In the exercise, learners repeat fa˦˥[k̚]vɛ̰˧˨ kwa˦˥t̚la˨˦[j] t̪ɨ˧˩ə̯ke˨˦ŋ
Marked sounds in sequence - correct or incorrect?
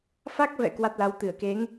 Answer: correct, incorrect: w

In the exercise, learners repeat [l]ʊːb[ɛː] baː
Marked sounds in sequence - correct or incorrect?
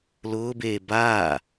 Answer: correct, incorrect: eː

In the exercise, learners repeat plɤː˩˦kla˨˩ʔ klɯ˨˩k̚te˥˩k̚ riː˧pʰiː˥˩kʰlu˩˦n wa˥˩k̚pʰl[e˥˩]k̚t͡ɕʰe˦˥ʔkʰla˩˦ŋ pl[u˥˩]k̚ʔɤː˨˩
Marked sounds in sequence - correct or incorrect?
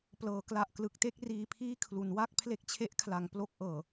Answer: correct, incorrect: o˥˩

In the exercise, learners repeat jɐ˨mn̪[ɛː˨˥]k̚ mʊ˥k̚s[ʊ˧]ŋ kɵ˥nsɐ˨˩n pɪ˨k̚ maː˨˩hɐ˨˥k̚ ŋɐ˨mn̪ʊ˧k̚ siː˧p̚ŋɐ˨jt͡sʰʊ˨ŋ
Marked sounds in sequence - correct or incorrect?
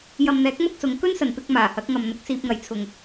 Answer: correct, incorrect: ʊ˨˧

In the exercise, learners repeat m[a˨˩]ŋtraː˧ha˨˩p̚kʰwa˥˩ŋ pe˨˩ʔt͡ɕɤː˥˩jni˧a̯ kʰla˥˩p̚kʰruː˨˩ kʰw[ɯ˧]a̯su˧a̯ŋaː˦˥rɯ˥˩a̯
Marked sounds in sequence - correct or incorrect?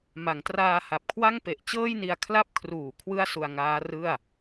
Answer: incorrect: a˩˦, incorrect: ɯ˥˩

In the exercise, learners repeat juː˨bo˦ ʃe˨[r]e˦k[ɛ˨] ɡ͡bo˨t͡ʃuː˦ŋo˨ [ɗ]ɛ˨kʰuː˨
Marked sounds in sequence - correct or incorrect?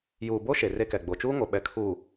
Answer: correct, correct, incorrect: ɓ

